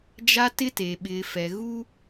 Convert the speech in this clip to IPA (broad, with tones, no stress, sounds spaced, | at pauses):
d͡ʒ a˦ t ɪ˦ t e˨ ɓ ɪ˨ f ɛ˨ ɣ u˦